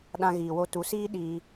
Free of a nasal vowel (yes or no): no